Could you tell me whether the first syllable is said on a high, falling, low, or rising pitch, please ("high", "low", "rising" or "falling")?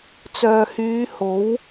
low